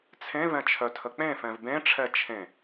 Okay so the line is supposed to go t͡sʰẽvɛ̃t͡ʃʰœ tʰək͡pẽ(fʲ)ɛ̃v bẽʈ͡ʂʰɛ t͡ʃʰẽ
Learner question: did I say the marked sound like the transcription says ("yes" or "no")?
no